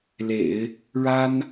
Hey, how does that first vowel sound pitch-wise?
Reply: low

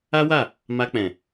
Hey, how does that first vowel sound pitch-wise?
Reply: high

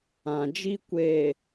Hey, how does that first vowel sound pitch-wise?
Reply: low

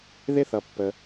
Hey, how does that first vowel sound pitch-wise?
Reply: high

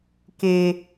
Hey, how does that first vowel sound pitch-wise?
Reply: low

